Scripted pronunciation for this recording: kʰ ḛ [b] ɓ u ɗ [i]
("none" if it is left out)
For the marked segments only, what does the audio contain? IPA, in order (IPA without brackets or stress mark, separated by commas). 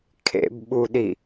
b, i